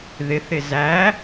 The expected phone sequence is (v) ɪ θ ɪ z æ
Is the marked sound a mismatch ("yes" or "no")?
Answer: yes